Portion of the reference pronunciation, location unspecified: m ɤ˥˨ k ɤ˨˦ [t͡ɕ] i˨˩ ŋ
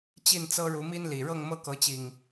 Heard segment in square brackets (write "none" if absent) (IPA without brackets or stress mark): t͡ɕ